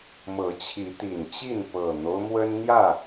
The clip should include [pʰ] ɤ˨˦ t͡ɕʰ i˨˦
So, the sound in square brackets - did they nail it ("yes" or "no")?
no